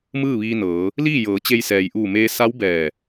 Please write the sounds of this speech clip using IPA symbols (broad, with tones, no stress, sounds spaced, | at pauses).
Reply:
m ɯː˥˨ ʋ iː˧ n ɤː˩˧ | l iː˥˨ j ɤː˩˧ t͡ɕ e˧ j s ɛː˩ j ʔ uː˧˩ m eː˧ s a˧˥ w b ɛː˧˩